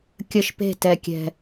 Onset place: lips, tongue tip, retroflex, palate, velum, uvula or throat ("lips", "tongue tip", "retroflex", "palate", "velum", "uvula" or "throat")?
velum